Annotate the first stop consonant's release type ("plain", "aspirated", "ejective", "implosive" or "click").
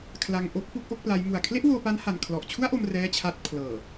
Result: aspirated